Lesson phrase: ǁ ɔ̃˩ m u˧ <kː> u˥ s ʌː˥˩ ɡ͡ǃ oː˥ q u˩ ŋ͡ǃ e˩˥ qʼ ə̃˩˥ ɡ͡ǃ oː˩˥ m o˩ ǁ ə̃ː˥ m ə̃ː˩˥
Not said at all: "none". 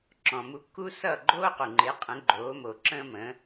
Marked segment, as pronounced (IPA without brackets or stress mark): kː